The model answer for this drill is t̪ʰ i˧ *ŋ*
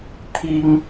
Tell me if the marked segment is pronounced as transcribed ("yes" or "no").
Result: yes